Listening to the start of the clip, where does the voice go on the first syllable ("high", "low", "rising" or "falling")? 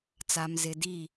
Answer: low